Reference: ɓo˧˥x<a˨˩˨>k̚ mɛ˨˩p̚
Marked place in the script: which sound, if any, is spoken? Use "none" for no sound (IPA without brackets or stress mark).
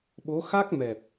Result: a˦˥